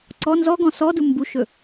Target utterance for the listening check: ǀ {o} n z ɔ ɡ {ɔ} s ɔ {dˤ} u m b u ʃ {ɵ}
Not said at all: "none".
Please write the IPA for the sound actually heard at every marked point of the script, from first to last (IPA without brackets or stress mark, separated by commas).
ɔ, ɔ̃, d, ɵ